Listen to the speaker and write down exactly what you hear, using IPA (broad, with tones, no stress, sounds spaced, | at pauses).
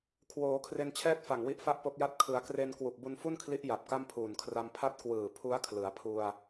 kʰ w oː˩˦ kʰ r e˧ n t͡ɕʰ ɛː˥˩ t̚ f a˨˩ ŋ w i˦˥ ʔ f a˥˩ ʔ p o˦˥ k̚ j a˥˩ t̚ kʰ ɯ˩˦ a̯ k r e˧ n k w u˨˩ k̚ b u˧ n f u˥˩ n kʰ l i˦˥ ʔ j a˨˩ p̚ k a˥˩ m pʰ uː˨˩ n kʰ r a˧ m pʰ a˥˩ t̚ k w ɯː˨˩ pʰ u˦˥ a̯ kʰ l ɯ˩˦ a̯ pʰ u˧ a̯